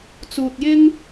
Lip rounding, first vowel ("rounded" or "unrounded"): rounded